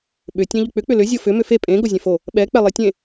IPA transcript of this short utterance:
ɓ ʏ tʲ ɛ̃ ʎ ʏ k͡p ʏ k͡p ʏ l ʏ zʲ o f ʏ m ʏ f e pʼ ẽ ɡ o zʲ ɛ̃ f o | ɓ ɛ k͡p ɛ lˠ e tʲ ẽ

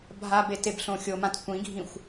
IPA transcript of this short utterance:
bʱ a b e t e b ɬ õ xʲ o m ã t kʷ ĩ ɡʱ ĩ xʷ

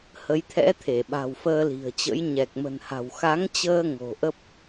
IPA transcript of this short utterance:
h ə˨˦ j t̪ʰ ɛ̰˧˥ t̪ʰ e˧˩ ɓ a̤˨˩ w f əː˧ l i̤˨˩ ə̯ t͡ɕ ə̰˧˥ j ɲ ɛ˨˩ k̚ m ə̤˨˩ n h a̤˨˩ w x a˨˦ ŋ t͡ɕ əː˧ ŋ o̤˨˩ ʔ ə˦˥ p̚

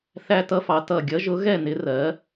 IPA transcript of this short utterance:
θ æ˦˥ t ʌ˦˥ f ɑ˨˥ t ʌ˧˩ ɡʲ ʌ˨˥ ʒ ʊ˨˥ ɣ ɛ˥˨ n ɪ˨˥ r ɜ˨˥

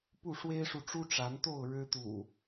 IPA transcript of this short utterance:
p u˥˨ ʂ w e˦ ɪ̯ ʂ u˨ ʈ͡ʂ u˦ ʈ͡ʂ a˨˦ n t̪ o˥˨ ʊ̯ ɻ ɻ̩˦ t̪ ṵ˨˩

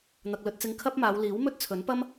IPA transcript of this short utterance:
n̪ ɐ˨ k̚ l ɵ˨ t̚ t͡s ɪ˨ ŋ kʰ ɐ˥ p̚ m aː˨˧ w l iː˨˥ w m ɵ˥ t̚ t͡sʰ ɵ˨˥ n p ɐ˥ m

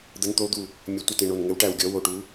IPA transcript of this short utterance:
d̪ ə˨˦ n t̪ o˨˦ d̪ u˧˩ | mʲ ə˨˦ tʷ ə˧˩ t ẽ˧˩ ɳ o˧˩ n ŋ ɘ˨˦ w ʈ æ˧˩ w ɡʲ ɔ˨˦ w o˧˩ ʈ u˨˦

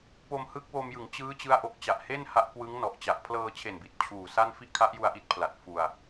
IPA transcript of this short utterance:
p o˧ m h ɯ˦˥ k̚ w o˧ m j ɯ˩˦ ŋ t͡ɕ ɯː˦˥ t͡ɕ ɯ˦˥ a̯ ʔ o˨˩ k̚ t͡ɕ a˨˩ ʔ h e˥˩ n h a˦˥ ʔ k w ɯ˦˥ ŋ n ɔ˨˩ ʔ t͡ɕ a˨˩ ʔ pʰ l ɤː˧ t͡ɕʰ e˨˩ n b i˨˩ t̚ t͡ɕʰ uː˨˩ s a˥˩ n f i˥˩ ʔ kʰ a˦˥ ʔ j u˧ a̯ ʔ i˦˥ t̚ pʰ l a˨˩ t̚ f u˧ a̯

